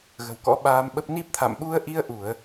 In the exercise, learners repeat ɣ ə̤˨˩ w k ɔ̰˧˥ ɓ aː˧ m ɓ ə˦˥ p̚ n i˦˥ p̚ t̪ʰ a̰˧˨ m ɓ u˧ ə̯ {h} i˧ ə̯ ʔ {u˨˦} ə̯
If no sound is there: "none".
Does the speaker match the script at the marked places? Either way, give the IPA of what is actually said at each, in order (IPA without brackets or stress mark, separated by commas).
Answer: ʔ, u˧˩˨